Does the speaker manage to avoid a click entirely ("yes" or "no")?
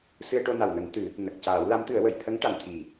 yes